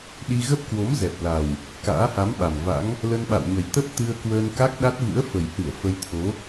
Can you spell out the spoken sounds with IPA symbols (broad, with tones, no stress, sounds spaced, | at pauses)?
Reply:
ɗ i˧ ɣ ə˦˥ p̚ k w o˨˦ m z ɛ˨˩ p̚ l a˨˩ w | k a̰ː˧˥ h a˨˦ m ɓ a˨˩ m v a̰˧˥ ŋ | l ə˧ n ɓ a̰˧˨ w ɲ ə˨˩ j t̪ ə˦˥ p̚ t̪ ɨ˧ ə̯ k w əː˧ n k a˦˥ k̚ ɗ a˦˥ t̚ v ɨ̰˧˥ ə̯ f ə˨˩ j h ɨ˧˩ ə̯ f ə˧ j t̪ʰ o˨˦